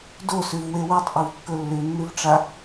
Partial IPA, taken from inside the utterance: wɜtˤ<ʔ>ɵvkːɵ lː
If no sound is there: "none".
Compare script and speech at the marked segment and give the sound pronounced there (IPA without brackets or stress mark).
ʔ